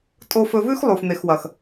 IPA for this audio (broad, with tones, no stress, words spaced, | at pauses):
tʼo˧fɵ˧vʉ˦x lˠu˨fn̪e˨xwɐ˨x